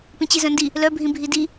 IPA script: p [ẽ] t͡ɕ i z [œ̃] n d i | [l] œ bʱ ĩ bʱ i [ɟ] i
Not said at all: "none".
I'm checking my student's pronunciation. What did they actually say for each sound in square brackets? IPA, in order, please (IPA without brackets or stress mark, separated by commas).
ĩ, œ̃, l, d